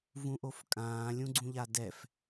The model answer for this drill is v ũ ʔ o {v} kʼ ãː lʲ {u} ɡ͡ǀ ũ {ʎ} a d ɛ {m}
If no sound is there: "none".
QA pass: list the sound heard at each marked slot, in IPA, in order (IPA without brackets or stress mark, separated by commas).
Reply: f, ũ, ʎ, f